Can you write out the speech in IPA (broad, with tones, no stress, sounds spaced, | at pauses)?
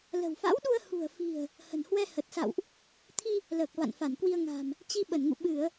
l ə̤˨˩ w f a̰˧˥ w ɗ u˧ ə̯ h ṳ˨˩ ə̯ f i̤˨˩ ə̯ | h ə̤˨˩ n h w ɛ˧ h ə˨˩ t̚ s a̰˧˨ w ʔ | t̪ʰ i˧ | l əː˨˩ k̚ v a̰˧˨ n f a˧˩ n k w i˧ ə̯ ŋ a̤˨˩ m | t͡ɕ i˧ ɓ ə˧˩ n ŋ ṵ˧˨ ɓ ɨ˧˩˨ ə̯